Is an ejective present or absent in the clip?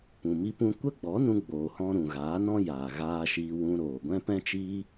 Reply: absent